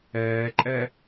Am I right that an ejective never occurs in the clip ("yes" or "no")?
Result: no